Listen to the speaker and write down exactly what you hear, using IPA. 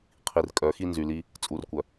qʰ i˨ r kʼ œ˨˦ x i˦ n z y˨ l i˦ | t͡sʼ u˨ r kʷ œ˨

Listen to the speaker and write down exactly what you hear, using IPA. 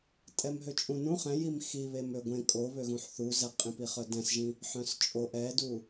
tʼ ɛ m ɦ ø t͡ʃʼ ũ n ũ χ ɛ̃ j i m x i β e m ø ɡʷ ẽ kʼ o β ø ɣ ũ ħ θ u z ɛ qʼ ĩ p i χ œ d ɛ̃ s ʒ ĩ | ħ œ̃ s t͡ʃʼ o ʔ ɛ d u

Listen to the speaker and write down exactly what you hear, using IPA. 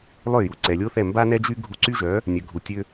lˠ ø˥˩ j u˩ ǀ ɛ˩ lʲ o˥ θ ɛ˥˩ m b a˥ n ɛ˥ d͡ʒ y˥ ɡʱ u˧ ǀ y˥ ʒ œ˩˥ | nʲ œ˩ ɡʱ u˩ tʲ ø˧

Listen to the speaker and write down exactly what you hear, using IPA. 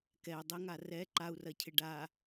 k ɛ u̯ dˤ ɪ ŋ a r ɛ ǃ a u̯ r ɐ cʰ ɪ ɖ a

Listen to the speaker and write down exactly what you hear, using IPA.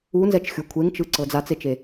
u n z ɛ t͡ʃ xʲ u kʷʰ e ŋ t͡ʃ ɯ ǀ ɤ d͡z a t͡s e t͡ʃ e

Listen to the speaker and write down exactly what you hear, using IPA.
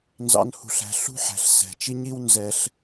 n z ɑ̰˦ n h ṳ˧ ɬ æ̤˧ ɬ ṳ˦ ħ æ̤˨ ɬ s ɛ̤˨ t͡ʃ i˦ ɲ i˦ w n z ɛ˧ ɬ

